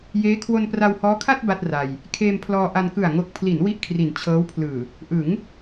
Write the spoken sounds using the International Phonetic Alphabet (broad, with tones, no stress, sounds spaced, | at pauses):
j eː˦˥ kʰ w o˧ n p r a˧ w h ɔː˦˥ kʰ a˥˩ t̚ b a˥˩ t̚ r a˧ j | kʰ eː˧ m pʰ l ɔː˧ ʔ a˧ n k ɯ˨˩ a̯ ŋ o˨˩ k̚ pʰ l i˩˦ n w i˥˩ ʔ kʰ r i˨˩ n t͡ɕʰ ɤː˦˥ w pʰ l ɯː˨˩ | ʔ ɯ˩˦ ŋ